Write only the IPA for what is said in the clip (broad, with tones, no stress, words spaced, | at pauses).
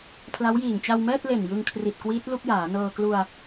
pʰla˦˥wjiː˨˩ŋ t͡ɕa˧wmɛː˥˩t̚le˨˩n jɯ˧ŋkʰri˨˩t̚kwiː˦˥t̚ lu˥˩k̚jaː˩˦nɤː˧ klu˧a̯